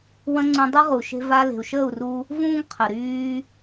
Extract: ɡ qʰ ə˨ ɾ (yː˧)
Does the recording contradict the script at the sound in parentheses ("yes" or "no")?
no